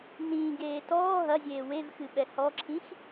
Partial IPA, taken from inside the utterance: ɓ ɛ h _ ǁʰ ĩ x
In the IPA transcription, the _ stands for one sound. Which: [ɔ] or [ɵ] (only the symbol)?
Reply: ɔ